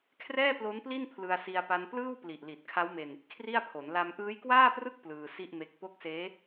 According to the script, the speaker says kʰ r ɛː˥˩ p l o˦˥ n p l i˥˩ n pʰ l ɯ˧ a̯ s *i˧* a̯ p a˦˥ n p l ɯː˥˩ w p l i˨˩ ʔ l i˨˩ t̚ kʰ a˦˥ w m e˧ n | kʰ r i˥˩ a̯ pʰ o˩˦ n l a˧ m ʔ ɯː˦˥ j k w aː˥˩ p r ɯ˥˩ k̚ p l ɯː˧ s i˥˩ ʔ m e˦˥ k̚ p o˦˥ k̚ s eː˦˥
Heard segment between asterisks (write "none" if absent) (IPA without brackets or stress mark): i˧